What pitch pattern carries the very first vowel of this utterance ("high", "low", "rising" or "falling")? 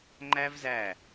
high